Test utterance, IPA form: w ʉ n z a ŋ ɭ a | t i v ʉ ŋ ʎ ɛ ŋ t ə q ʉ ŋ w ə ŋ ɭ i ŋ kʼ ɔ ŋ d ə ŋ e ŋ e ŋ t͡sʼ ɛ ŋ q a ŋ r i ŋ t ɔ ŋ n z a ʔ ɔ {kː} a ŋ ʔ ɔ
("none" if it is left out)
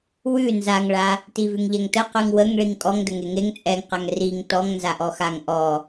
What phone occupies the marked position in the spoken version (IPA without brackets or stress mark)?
x